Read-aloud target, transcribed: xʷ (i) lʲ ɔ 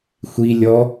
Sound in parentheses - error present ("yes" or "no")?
no